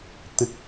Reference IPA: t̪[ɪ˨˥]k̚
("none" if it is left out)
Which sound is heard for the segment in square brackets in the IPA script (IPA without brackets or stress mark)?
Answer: ɪ˥